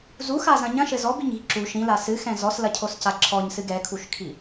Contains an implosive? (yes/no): no